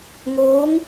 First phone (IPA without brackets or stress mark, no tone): ŋ